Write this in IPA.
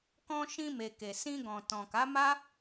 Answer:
k ɔ̃˧ ʃ ĩ˧ m e˨ k e˨ s ĩ˧ ɡ ɔ̃˨ t ɔ̃˨ k a˨˦ m a˦

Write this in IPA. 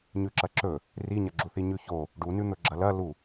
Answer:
ɲ ʉ ǁ ɐ ǁ ɵ | r i ɲ ɐ ɡ͡ǁ u θ i ɲ ʉ ç o | ɖ u n ʉ n̪ ɵ ɡ͡ǁ ɐ l ɐ l u

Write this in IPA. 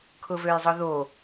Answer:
kʰ ʊ v ø j zˤ ʊ ð o

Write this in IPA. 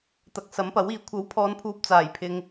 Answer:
t̪ ɐ˨˥ k̚ s ɐ˨˥ m p ɐ˨˥ w iː˨˥ kʷʰ ɐ˨˥ w pʰ ɔː˨˧ n pʰ uː˨ p̚ t͡s aː˨˩ j pʰ ɪ˨ ŋ

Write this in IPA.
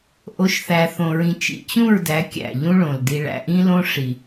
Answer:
ʔ o˨˦ ʃ θ æ˨ θ õ˨ ɹ ĩ˨ t͡ʃ ḭ˨ t͡ɕ ũ˦˨ ɹ d æ˨˦ kʲ æ̰˨ ʎ ũ˦ ɭ õ˨ l d i˨ ɭ æ̰˨ ʔ ĩ˦ l õ˦ ʂ i˨

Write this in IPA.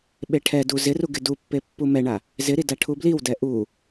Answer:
ɓ e ʈʰ ɛ d u z ɪ r u ɡ ɪ d u pː e pː u m ɛ ɳ a | z ɪ ɾ i d a ʈʰ u b l i w d ɛ ʔ u

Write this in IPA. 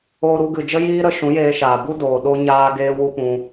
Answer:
oː˧ ɾ u˧ ɡ ɨ˨ d͡ʒ ə˦ j iː˦ ɾ ə˧ ʃ ũ˨˦ j eː˧ ʃ aː˨ b u˦ d oː˨ ɗ o˦ ɲ aː˦ ɡ eː˦ w u˦ p ũ˧

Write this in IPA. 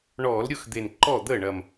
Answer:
ɳ ɔː˧˩˧ l ɾʲ ʊː˥˩ x d̪ e˨˩ n ǃ ɔ˥˩ d̪ əː˥˩ ɳ ɐ˨˩ m

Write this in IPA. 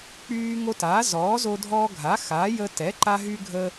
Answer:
k͡p yː˦ ŋ o˦ t aː˨˥ z ɔː˨˥ z o˦ dʱ ɔː˦ ɡʱ a˨˥ x a˨˥ j ə˦ t ɛ˨˥ ǃ a˦ ɦ y˦ ɡʱ ə˦

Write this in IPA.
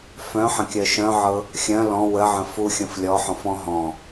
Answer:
f œ̃ ħ ə̃ kʲ œ ʃ œ̃ ʕ ɤ | xʲ œ̃ l ɔ̃ w ə ʕ ə̃ f u xʲ ə̃ f lʲ ɔ ħ ɔ̃ f ɔ̃ ɦ ɔ̃

